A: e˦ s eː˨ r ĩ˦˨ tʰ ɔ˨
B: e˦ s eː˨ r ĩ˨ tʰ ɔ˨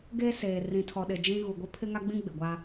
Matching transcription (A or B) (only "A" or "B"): B